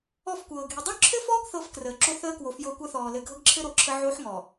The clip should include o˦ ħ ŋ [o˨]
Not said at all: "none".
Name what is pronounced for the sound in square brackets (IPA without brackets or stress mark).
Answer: ɔ˨